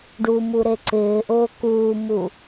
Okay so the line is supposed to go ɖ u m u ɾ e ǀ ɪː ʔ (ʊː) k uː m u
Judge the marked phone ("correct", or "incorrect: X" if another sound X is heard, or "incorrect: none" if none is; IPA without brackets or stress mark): correct